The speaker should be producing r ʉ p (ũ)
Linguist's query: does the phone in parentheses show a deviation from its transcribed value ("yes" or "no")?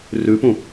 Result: no